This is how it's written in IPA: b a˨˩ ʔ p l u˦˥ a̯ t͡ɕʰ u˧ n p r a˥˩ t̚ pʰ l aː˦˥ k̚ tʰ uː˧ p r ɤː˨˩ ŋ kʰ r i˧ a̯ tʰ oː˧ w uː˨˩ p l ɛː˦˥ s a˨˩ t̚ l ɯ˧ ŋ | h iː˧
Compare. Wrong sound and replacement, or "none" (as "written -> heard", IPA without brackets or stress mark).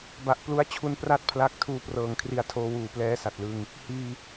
aː˦˥ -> a˦˥